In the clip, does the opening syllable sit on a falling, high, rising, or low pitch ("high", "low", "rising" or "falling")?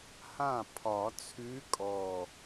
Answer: falling